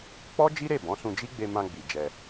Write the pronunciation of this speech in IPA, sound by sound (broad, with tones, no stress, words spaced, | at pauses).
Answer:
k͡pɔ˦d͡ʒi˦ɾe˦˨ bɔ̃˨˦sũ˧ d͡ʒi˦ɡ͡be˧ mã˧ɡ͡bi˨ d͡ʒɛ˧